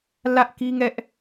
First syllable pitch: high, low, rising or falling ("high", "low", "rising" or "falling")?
high